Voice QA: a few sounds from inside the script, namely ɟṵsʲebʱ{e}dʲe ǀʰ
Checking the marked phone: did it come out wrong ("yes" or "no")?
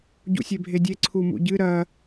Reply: no